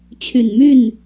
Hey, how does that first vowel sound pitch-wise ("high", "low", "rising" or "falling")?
low